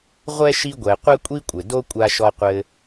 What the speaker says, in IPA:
ʁʷ ɛ˥ ʃ i˦ ɡʷ ɛ˨ qʷ ɛ˥ kʷʼ i˥ kʷʼ ɘ˨ d o˥ kʷʼ a˦ ʃ ɔ˦ qʷ ɘ˦

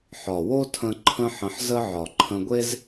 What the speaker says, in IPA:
ħ ɒ˨ w o˦ tʰ ə̃˧ ǃʰ ə̃˦ ħ ə̃˧ ħ z ə˦ ʕ ɒ˨ ǃʰ ə̃˧ ɡʷ e˦ z

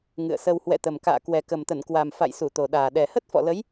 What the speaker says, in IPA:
ŋ ɨ̰˧˨ ə̯ s ə˧ w h w ɛ̰˧˨ t̪ ə˨˩ m k a̰ː˧˨ k w ɛ˨˩ k ə˨˩ m t̪ ə˧˩ n k w a˨˩ m f a̰˧˨ j s u˧˩ t̪ o˨˩ ɗ aː˨˩ ɗ ɛ˨˩ h ə˦˥ t̚ f ɔ̰˧˨ l ə˨˦ j

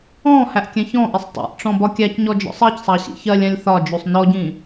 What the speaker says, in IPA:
ɔ̃ h æ ʔ kʲ ɛ̃ ç ɔ̃ ʔ i sˤ tˤ ḭ ʔ ʈ͡ʂ ɔ̃ b ɒ kʲ æ c ɲ ɔ d͡ʒ ɔ̰ sˤ ɜ c sˤ ɑ ɕ ḭ ç ɜ lʲ æ̃ lʲ θ ɒ d͡ʒ u sˤ n ɔ ɟ ĩ

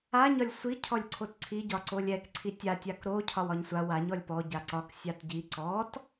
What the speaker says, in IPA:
a ɲ ɒ lʲ sʷ i cʰ ɔ lʲ ǀʰ o t ǀʰ i ɟ ɒ ǀ o lʲ ɛ k ǀʰ i tʲ a tʲ a k ɾ o cʰ ɒ w ɒ ɲ sʷ a w a ɲ ɔ lʲ p ɔ ɟ a ǀ ɒ k sʲ a t ɟ i ǀ ɔ t

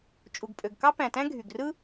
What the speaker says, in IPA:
t͡ʃʼ u˩ ɡ pʼ ø˩ ɡ k ɑ˥ p æ̃˩ t æ̃˥ ɡʱ y˩ ɡ r ɯ˥

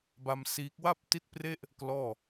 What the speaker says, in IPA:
b a˧ m s iː˦˥ k̚ w a˥˩ p̚ t i˦˥ t̚ p r e˥˩ ʔ | k l ɔː˥˩

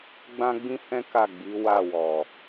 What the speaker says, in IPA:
ɡ͡b ã˦ ɡ͡b ĩ˦ h ɛ̃˦ k a˦˨ ɡ͡b i˨˦ w a˦˨ w ɔ˨

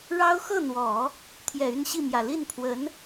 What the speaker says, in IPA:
ɻ ɑ˥ ʊ̯ x ɤ˥˩ n̪ w ɔ˨˩˦ | t̪ʰ j ɛ˨˩ y˥˧ n ɕ i˥˩ m j ä˨˩ l i˥˩ n pʰ w ə˧˥ n

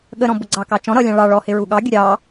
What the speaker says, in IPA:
ɠ ə ɾ ɔ̃ b ʊ ɡ͡ǀ ɑ k ɑ t͡ʃ ɔ̃ ɾ ʌ lʲ ɑ̃ ɭ ɑ ɭ ɔ h ɪ ɹ u ɠ ɑ ɡʲ ə ɾʲ ɑ

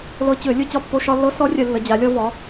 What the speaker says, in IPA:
l ɤ˧ t͡ɕ ø˧˩˧ lʲ ɯ˥˨ t͡ɕ ɒ˥˨ pː o˧ ʃ ɒ˧ lː ɤ˧˥ s ɔ˧˥ rʲ ə˧˩˧ lː ə˩˧ d͡ʑ a˩˧ lʲ ɔ˧ v ɒ˩˧

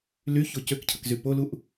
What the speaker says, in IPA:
l y ç o c ø k cʰ ə k z y p o l u ʔ

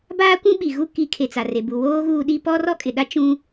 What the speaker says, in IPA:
b aː˦ kʷ ũ˦ ɓ i˨ ɣ u˦ k i˨˦ kʰ e˨ t͡s a˨ r e˨ b u˨ w oː˦ ɣ uː˦ ɗ i˦ p ɔ˦ r ɔ˦ kʼ ɪ˨ ɗ a˦ t͡ʃ ũ˦

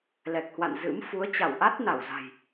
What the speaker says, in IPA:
l ɛ˨˩ k̚ h w a̰˧˨ n z ɨ̰˧˥ m f u˨˦ ə̯ t͡ɕ a˧˩ w ʔ a˦˥ t̚ n a˧˩ w z a̤˨˩ j

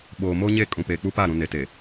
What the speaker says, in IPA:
ɓ oː˨ m o˦ ɲ e˦˨ kʼ ũ˨ p eː˨ k͡p u˦ p a˦˨ ɾ ũ˨ n e˨ t e˨

